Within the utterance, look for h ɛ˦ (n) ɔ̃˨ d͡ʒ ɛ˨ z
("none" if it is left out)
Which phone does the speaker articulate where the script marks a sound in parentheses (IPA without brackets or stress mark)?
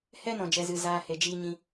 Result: n